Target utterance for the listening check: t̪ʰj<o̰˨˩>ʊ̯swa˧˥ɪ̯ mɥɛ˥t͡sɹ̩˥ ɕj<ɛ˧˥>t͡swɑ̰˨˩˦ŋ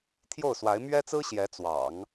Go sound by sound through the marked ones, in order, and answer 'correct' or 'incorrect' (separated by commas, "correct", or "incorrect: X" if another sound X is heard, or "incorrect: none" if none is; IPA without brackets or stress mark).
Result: incorrect: o˥˩, correct